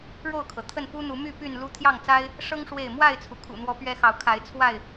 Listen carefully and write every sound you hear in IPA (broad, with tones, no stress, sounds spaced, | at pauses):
ɻ o˥˨ ʊ̯ kʰ ɤ˩ t̪ʰ ə˥˨ n p u˦ n̪ u˨˦ m y˥˨ p y˥˨ n l u˦ t̪ʰ j ɑ˥˨ ŋ t͡s a˦ ɪ̯ | ʂ ɤ˦ ŋ ʂ w e˥˨ ɪ̯ m w a˥˨ ɪ̯ t͡sʰ u˩ kʰ ṵ˨˩ n̪ w ɔ˨˦ p ɥ ɛ˦ x ɑ˨ ʊ̯ kʰ a˨˦ ɪ̯ t͡sʰ w a˥˨ ɪ̯